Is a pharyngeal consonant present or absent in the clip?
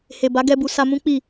absent